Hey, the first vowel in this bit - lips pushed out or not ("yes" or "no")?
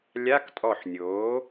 no